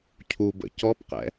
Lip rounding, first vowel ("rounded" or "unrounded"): rounded